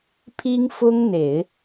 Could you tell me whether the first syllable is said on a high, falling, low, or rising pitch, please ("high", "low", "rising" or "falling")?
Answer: high